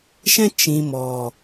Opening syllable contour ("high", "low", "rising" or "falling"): high